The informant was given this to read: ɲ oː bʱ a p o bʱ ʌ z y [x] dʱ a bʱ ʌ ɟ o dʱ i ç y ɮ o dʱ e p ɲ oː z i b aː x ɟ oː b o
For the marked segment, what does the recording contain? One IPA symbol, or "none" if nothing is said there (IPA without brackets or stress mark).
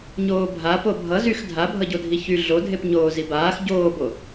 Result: x